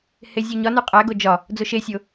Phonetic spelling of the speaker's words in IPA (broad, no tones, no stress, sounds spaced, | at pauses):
h e zʲ u ɲ ɒ n u qʼ æ ɡ o d͡ʒ ɒ | d͡z o ʃ e sʲ o